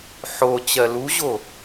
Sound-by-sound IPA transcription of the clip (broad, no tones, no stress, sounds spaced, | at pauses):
ħ o t͡ɕ ɜ l u ʑ o